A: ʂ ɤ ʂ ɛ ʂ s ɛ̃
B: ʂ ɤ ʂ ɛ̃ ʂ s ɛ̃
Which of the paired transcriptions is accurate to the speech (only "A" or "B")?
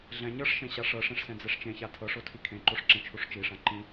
B